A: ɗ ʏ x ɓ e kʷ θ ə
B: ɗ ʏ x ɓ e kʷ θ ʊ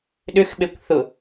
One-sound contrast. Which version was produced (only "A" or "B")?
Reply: B